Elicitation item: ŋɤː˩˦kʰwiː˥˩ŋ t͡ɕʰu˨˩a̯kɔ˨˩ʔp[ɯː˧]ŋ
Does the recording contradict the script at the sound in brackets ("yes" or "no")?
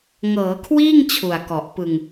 yes